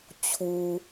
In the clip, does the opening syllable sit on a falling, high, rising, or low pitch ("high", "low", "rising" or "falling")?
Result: low